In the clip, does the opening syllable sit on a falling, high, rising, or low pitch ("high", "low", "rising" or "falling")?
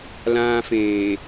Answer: high